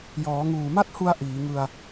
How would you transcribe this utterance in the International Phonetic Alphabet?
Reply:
j ɔː˩˦ ŋ uː˨˩ m a˥˩ t̚ h u˧ a̯ ʔ iː˩˦ ŋ ɯ˧ a̯

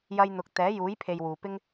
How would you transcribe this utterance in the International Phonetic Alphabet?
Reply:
j ɐ˧ j n̪ ʊ˨˥ k̚ t̪ ɛː˨˥ j uː˨˥ j pʰ e˨ j w uː˨ p ɪ˥ ŋ

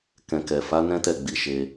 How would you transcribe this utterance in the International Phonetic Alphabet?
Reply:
k ɛ̃˨ k ɛ˨ f a˨˦ n ɛ̃˦ t ɛ˦˨ ɡ͡b i˨˦ ʃ e˧

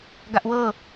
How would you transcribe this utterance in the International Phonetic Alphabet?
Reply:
ɡ a ʔ w ɤ

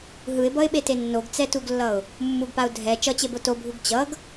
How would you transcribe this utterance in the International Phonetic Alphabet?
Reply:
ɦ ɯ ɪ̯ b ʌ ɪ̯ ɓ e t e nː o ɡ t͡s ɛ t u ɡ lː ʌ ʊ̯ | mː u ɡ p a ʊ̯ dʱ ɛ t͡ʃ ʌ t͡ɕ e b o t o bʱ u ɡ t͡ɕ ʌ ɡ

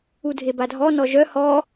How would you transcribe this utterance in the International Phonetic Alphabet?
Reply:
u dʱ e b a dʱ ɔ n ɔ ʒ œ h ɔ

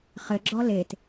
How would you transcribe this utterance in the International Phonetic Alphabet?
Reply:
χ ɘ ɡ͡ǁ ɔ l e t

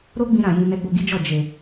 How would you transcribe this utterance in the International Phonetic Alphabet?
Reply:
ɾ o˦ ɡ͡b ĩ˧ ɾ ã˨ j ĩ˧ n ɛ˧ ɡ͡b o˧ ɡ i˦ d͡ʒ ɔ˦˨ d͡ʒ e˨

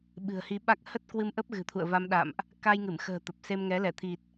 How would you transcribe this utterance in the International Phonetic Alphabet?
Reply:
ɓ ɨ̤˨˩ ə̯ h i˨˦ ɓ a˦˥ k̚ h ə˦˥ t̚ k w ɨ˧ m ʔ ə˦˥ p̚ ɣ ɨ̤˨˩ t̪ʰ ṵ˧˨ ə̯ v a˧ m ɗ a̰˧˨ m ʔ | k a˧ j ŋ ɨ˧˩ m x ə̤ː˨˩ t̪ ə˨˩ p̚ s e˧ m ŋ ɛ˨˦ l ɛ˧˩ t̪ʰ i˨˩ t̚

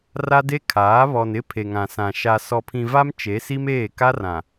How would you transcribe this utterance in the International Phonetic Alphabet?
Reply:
r a˦ d e˦ kʰ aː˨˦ β ɔ˨ n ɪ˦ pʰ e˨ ŋ ã˨ s ã˨ ʃ a˨ s ɔ˨ pʰ ĩ˨ v a˦ m t͡ʃ e˨˦ s i˦ m eː˦˨ k a˦ r ã˨

